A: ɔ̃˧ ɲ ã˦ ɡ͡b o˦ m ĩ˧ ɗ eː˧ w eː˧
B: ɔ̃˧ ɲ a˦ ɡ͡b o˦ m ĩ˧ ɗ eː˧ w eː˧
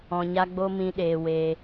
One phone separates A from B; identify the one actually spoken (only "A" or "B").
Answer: B